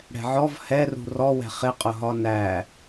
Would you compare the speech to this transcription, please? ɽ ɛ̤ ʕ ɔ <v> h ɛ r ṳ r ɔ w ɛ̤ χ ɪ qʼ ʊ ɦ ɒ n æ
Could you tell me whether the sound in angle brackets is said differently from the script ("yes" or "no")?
no